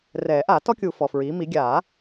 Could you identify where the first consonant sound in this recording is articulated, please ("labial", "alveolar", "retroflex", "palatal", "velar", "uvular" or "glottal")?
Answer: alveolar